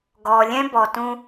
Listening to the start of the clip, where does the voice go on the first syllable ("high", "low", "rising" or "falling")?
low